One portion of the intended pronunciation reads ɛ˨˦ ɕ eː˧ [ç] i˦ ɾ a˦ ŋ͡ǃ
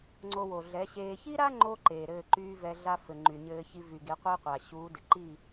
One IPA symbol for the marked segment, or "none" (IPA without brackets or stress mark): ç